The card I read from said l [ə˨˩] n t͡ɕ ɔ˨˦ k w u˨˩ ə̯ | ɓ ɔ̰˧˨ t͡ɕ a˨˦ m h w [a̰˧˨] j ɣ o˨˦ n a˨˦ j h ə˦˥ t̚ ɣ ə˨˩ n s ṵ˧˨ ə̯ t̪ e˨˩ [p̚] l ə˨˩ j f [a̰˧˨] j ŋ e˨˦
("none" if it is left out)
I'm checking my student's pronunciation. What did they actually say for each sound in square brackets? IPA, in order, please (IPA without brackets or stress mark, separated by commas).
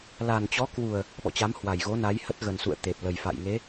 a˨˩, a˨˩, p̚, a̰˧˨